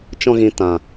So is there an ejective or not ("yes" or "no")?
no